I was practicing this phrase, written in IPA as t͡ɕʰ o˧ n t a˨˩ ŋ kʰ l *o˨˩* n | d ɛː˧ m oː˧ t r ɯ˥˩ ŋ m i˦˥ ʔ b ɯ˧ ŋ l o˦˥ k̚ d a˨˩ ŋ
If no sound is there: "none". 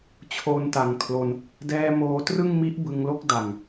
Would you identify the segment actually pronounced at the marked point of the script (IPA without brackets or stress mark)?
o˧